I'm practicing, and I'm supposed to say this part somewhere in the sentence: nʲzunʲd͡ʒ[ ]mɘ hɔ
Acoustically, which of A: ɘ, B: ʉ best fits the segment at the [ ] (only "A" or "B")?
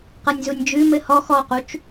B